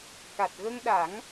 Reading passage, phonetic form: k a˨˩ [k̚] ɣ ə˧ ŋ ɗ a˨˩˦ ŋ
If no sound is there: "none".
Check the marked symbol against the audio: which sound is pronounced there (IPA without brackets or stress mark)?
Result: t̚